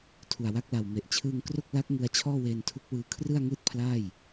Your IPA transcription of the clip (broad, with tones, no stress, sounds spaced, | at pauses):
tʰ u˨˩ a̯ w a˦˥ k̚ l a˨˩ w m e˨˩ ʔ t͡ɕʰ ɯː˧ ŋ k r o˥˩ k̚ l a˦˥ k̚ ŋ ɯ˧ a̯ t͡ɕʰ ɔː˥˩ w eː˧ n tʰ u˦˥ k̚ w ɯː˧ kʰ r ɯ˥˩ a̯ ŋ ɯː˥˩ t̚ pʰ l aː˥˩ j